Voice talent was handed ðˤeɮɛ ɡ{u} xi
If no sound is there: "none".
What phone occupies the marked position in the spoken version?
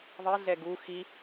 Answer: u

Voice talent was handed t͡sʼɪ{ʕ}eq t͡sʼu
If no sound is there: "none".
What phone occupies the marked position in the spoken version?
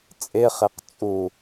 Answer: χ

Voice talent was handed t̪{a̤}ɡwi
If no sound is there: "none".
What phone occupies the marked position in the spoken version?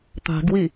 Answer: a̤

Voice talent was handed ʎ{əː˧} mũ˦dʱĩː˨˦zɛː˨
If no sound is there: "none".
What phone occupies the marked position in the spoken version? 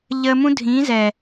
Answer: əː˧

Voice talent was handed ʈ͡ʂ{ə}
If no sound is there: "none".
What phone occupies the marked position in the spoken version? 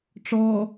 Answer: ɔ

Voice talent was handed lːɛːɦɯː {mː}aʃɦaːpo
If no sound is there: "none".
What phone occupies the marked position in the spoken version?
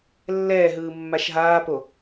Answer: mː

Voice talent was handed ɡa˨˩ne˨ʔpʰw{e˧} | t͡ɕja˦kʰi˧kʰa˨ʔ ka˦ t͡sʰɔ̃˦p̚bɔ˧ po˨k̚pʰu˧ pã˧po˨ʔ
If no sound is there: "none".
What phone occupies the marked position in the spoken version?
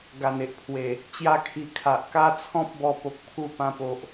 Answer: e˨˩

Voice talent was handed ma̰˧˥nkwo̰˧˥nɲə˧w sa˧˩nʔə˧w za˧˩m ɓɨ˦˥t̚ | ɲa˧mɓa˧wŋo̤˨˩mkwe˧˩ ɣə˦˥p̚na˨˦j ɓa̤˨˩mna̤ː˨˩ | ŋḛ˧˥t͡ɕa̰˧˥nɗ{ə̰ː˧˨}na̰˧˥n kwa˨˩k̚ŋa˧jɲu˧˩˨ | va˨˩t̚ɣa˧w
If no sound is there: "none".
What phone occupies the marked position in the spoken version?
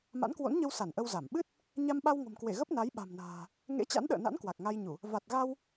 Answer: ə̰ː˧˨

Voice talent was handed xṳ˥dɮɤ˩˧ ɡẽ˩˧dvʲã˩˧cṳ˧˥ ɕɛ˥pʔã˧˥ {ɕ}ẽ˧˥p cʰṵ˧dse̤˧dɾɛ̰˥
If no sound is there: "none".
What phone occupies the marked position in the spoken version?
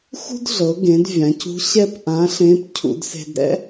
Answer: ɬ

